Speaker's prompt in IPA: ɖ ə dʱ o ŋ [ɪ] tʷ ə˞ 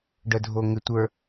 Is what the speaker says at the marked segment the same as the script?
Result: yes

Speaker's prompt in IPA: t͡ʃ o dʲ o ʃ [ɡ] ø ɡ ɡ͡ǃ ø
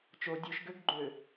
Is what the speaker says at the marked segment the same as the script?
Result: yes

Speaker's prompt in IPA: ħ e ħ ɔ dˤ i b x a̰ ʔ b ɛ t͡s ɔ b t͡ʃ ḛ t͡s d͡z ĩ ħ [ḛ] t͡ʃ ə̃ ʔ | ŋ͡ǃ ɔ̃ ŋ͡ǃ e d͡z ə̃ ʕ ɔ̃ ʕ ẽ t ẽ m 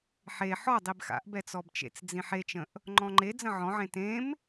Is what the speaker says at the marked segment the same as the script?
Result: no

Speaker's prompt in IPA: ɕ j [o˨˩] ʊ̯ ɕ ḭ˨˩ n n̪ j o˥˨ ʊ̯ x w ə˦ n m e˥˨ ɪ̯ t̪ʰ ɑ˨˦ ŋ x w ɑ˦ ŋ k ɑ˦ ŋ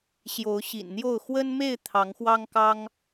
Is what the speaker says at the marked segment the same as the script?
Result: no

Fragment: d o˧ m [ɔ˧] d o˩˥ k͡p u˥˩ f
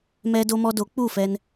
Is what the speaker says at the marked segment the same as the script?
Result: yes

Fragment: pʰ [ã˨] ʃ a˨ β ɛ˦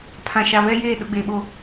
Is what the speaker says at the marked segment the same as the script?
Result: yes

